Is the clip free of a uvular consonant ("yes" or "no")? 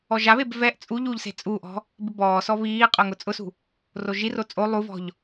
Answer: no